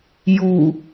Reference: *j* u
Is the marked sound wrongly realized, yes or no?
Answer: no